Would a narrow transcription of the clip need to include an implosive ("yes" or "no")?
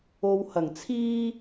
no